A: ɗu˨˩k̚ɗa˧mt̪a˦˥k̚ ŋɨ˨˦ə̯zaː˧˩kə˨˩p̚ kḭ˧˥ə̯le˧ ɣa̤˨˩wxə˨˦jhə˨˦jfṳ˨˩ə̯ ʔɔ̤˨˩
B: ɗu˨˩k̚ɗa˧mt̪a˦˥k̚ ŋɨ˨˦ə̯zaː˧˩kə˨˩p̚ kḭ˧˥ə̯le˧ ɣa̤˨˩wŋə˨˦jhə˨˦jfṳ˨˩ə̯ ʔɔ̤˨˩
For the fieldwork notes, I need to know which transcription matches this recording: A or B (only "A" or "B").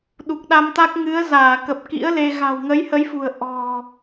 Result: B